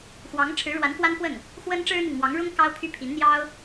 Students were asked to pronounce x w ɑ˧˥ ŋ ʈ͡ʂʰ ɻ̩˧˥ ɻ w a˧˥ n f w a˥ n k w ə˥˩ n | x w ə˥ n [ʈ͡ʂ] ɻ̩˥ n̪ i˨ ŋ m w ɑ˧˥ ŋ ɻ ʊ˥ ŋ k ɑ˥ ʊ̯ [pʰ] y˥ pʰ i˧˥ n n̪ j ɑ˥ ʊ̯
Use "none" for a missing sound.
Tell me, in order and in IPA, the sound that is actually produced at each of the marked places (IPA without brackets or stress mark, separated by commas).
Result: ʈ͡ʂ, pʰ